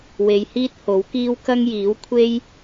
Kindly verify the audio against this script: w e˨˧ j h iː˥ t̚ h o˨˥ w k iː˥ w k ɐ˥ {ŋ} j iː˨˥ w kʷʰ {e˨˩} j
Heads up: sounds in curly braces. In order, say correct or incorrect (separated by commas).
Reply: correct, incorrect